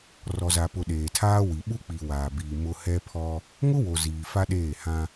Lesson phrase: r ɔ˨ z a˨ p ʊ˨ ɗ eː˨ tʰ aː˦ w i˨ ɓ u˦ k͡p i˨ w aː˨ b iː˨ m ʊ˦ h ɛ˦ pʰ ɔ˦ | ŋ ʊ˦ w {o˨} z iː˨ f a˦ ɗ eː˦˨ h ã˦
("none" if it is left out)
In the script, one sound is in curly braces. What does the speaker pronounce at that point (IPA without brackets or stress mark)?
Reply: o˨